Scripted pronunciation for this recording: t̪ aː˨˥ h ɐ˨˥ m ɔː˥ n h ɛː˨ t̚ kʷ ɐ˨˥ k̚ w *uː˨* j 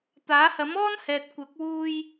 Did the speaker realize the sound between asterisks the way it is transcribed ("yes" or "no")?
no